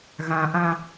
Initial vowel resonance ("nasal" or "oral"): nasal